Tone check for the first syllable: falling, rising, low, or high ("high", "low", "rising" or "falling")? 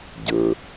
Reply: low